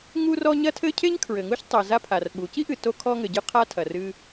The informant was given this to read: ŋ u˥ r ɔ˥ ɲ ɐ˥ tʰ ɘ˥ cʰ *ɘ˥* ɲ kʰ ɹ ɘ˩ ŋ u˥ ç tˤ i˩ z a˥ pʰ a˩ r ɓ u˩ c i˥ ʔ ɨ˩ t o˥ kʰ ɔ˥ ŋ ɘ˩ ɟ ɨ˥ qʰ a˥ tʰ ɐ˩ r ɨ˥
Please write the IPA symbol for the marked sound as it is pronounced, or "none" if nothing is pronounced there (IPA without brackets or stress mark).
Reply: e˥